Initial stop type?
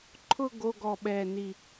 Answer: click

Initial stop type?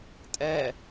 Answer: ejective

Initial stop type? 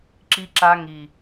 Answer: click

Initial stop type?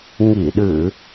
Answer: implosive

